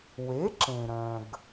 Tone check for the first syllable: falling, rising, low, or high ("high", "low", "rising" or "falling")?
rising